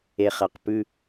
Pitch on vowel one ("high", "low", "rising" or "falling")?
low